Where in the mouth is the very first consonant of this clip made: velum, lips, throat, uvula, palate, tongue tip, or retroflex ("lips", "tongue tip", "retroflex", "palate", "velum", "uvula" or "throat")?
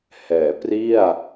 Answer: throat